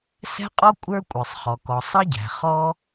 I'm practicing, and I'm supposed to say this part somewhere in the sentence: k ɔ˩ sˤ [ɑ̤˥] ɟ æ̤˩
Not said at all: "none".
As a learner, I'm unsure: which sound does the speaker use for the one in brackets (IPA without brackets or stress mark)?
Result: ɑ˥